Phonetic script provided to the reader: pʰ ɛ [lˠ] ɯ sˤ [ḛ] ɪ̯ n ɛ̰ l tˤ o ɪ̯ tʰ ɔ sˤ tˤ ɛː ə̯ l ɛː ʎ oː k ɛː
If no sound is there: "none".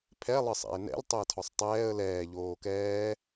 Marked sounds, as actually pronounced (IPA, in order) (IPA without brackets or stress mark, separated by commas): lˠ, ɛ̰